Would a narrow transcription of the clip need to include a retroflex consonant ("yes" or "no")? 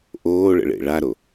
yes